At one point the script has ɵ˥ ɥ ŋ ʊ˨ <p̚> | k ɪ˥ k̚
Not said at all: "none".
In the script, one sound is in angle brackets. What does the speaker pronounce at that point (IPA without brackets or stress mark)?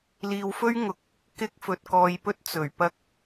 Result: k̚